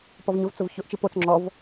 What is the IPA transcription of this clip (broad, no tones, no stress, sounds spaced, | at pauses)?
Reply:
p ɔ v ɲ ʊ v t͡s ʊ v ç ʊ ʔ t͡ʃ i p o t͡s ŋ͡ǁ ɔ v